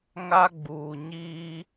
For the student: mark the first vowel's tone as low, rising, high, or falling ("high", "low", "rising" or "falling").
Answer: high